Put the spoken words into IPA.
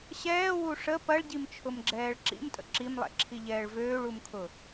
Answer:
ɕ ɛː w u ʂ ə p ɐ ɭ ɟ i m t͡ʃʰ ʊ m ɡ͡ǁ ɛː ɭ ǁ ḭ m tʼ ə̰ ǁ i m lˠ ɛ̰ ǁʰ i ʎ ɛː ɭ v øː ɭ u m kʰ ʊ

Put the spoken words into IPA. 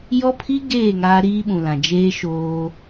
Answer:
j ɔ˦ pʰ i˦ ɡ eː˦˨ ŋ aː˦ ɾ iː˦ ɓ ũ˨ l ã˨ d͡ʒ eː˦ ʃ oː˦

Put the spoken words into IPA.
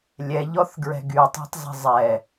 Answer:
lʲ ɛ ʎ ɔ θ ɡ ɹ ɛ̤ ɡ y tˤ æ̤ tˤ zˤ i̤ zˤ ɛ

